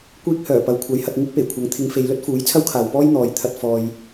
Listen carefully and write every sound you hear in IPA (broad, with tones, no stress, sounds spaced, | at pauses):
kʷ iː˧ k̚ h œː˨˩ p ɐ˨ w kʷʰ ɐ˨˥ j h ɐ˧ t̚ ŋ ɪ˥ k̚ p e˨˩ j kʷʰ ɐ˨˥ ŋ t̪ʰ ɪ˨˧ ŋ f e˨˧ j l ɵ˥ t̚ f uː˨˥ j t͡sʰ ɐ˥ w kʰ aː˨ w p ɔː˥ j n̪ ɔː˨ j t̪ʰ ɐ˧ t̚ f ɔː˨ j